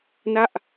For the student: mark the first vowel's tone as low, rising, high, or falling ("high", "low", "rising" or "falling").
falling